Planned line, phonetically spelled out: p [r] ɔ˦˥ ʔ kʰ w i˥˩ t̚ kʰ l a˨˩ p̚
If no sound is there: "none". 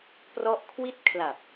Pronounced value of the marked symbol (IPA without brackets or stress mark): r